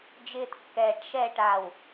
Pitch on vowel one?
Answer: high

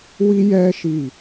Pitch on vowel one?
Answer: high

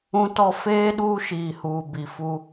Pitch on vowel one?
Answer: high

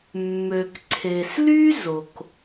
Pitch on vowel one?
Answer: low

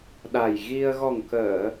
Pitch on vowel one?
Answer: low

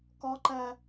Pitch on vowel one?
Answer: high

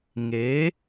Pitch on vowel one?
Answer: rising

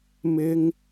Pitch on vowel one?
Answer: high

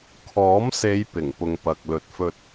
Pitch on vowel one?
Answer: rising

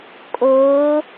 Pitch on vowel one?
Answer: rising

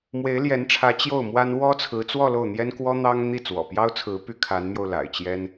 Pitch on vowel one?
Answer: rising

